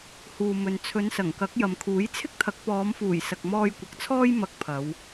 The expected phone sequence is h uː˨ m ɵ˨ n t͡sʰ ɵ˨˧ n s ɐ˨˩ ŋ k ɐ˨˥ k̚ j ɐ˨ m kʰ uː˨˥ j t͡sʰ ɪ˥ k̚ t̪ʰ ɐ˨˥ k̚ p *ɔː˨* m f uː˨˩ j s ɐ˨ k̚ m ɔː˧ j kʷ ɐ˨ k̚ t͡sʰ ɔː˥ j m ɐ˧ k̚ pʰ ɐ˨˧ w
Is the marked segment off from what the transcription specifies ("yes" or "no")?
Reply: yes